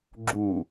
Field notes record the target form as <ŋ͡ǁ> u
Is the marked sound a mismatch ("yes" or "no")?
yes